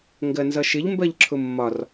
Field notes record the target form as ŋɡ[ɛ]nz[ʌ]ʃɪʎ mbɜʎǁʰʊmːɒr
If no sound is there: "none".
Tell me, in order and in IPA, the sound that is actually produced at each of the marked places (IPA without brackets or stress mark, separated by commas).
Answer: ɜ, ʌ